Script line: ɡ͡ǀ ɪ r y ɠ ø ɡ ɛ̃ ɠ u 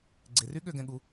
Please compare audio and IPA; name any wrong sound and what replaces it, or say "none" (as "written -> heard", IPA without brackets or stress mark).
none